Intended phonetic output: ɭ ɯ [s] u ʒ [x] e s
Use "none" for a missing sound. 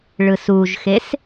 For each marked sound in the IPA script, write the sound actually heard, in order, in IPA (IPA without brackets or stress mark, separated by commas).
s, x